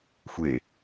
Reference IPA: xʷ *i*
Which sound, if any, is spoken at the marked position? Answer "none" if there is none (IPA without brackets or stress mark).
e